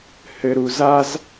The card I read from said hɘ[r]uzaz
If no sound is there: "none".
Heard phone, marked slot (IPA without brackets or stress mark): ɾ